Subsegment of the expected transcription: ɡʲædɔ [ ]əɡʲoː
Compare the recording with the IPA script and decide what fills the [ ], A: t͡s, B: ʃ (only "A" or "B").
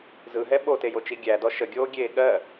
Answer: B